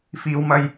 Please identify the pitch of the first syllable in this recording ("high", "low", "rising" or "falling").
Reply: low